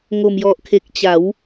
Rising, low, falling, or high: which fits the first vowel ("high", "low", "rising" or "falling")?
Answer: low